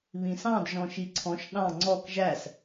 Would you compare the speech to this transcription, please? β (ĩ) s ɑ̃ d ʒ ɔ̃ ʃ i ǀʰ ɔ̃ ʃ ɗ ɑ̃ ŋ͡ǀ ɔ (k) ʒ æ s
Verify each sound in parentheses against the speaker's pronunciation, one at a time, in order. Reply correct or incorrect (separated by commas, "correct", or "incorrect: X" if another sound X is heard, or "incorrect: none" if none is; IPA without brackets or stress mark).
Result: correct, correct